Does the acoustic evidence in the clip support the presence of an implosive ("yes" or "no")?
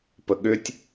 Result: yes